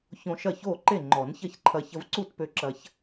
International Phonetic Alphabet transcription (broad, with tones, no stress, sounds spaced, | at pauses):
ç õ˧ ʃ ɐ˥˩ ç oː˥˩ ǃ e˥˩ ŋ͡ǃ ɔ˨˩˦ n ç ɐ˥˩ ç ǃʰ ɐ˧ ç ə˧ v ǀ u˥˩ t p ø˧ ǁ ɐ˧ ç